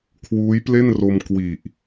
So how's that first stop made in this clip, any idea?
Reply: aspirated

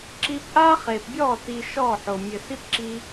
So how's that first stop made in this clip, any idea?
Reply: click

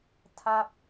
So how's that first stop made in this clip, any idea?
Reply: aspirated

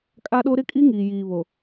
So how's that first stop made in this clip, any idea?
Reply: ejective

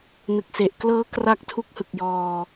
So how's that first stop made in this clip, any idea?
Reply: plain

